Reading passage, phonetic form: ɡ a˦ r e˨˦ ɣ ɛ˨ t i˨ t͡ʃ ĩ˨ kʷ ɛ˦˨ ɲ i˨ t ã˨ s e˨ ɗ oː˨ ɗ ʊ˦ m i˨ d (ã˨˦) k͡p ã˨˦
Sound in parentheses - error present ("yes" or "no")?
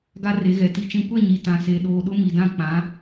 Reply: yes